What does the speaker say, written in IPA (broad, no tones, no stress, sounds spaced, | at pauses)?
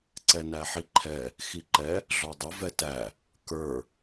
ǀ ɛ n æ ħ i ǃʰ ɛ | x i ǃ ɛ | ɮ ɔ dˤ ə v ɛ t æ | k ə˞